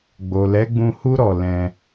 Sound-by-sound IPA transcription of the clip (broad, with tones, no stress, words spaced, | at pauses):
ɡ͡bo˨lɛ˨˦ɡ͡bũ˧hu˦ ɾɔ˧lɛ̃˧